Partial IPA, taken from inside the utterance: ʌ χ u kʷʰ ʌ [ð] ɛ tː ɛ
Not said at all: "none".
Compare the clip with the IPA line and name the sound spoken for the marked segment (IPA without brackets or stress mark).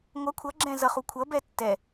b